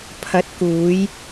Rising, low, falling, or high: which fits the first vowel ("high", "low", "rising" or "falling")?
rising